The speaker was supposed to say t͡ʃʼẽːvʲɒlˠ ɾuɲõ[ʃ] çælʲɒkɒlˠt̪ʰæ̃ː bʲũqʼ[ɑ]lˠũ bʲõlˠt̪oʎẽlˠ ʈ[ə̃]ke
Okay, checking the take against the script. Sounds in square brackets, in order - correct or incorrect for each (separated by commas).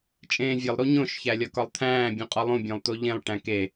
correct, incorrect, incorrect